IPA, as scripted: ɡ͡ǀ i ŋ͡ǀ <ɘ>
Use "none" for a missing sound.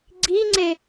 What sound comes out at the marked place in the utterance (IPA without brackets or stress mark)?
e